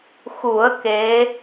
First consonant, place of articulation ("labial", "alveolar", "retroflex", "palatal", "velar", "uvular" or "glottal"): velar